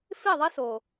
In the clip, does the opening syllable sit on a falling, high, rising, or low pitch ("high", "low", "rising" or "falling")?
falling